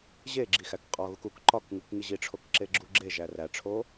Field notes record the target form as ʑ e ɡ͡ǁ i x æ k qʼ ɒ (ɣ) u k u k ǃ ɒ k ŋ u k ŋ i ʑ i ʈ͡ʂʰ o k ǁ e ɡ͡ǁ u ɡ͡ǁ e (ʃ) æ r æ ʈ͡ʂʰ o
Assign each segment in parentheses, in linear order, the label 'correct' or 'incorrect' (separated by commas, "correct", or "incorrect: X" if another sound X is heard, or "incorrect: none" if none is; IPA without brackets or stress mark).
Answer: correct, incorrect: ʒ